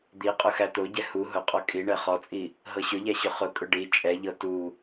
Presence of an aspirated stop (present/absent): absent